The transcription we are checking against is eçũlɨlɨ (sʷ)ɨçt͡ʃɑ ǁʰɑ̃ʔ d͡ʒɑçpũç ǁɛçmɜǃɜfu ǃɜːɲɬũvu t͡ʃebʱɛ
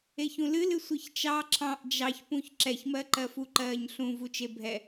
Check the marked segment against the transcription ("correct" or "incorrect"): correct